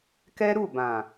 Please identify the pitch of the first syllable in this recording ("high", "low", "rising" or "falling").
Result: high